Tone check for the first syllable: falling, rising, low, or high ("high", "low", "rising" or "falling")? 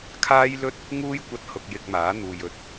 high